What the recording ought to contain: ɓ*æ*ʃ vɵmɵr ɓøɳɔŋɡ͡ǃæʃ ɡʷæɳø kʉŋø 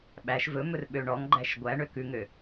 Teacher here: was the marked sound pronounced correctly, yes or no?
yes